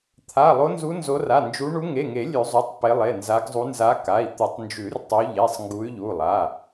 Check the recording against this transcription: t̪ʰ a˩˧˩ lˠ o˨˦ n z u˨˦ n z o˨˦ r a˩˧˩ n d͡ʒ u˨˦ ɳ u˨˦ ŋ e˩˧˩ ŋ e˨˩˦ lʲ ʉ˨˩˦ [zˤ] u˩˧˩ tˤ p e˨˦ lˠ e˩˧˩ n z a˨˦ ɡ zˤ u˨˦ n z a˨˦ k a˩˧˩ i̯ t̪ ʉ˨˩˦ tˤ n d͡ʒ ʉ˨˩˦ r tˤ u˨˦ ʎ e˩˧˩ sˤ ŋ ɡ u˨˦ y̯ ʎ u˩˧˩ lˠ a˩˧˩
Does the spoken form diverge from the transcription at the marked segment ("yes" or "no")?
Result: no